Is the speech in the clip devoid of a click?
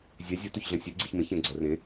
no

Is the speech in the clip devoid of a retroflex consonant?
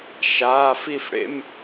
no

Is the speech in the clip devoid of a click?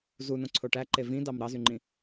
no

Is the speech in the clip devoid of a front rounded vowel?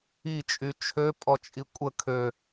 no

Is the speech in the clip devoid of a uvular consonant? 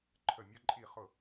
no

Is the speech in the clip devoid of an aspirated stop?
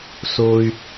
yes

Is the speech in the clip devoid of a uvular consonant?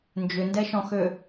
yes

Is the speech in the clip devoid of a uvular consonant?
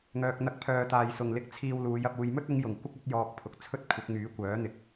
yes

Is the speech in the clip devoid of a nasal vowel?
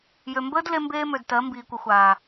yes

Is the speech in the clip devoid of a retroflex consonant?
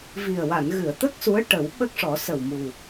no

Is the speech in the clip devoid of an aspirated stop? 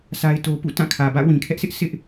no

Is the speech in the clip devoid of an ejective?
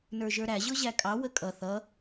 no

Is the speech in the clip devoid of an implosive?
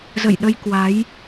no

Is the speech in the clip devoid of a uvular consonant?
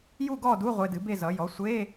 no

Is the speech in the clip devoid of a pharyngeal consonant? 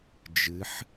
no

